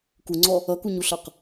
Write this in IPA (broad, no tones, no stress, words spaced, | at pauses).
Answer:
kuŋ͡ǀɔ | ʌkuɲuɬʌq